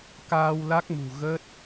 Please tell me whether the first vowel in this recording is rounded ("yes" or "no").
no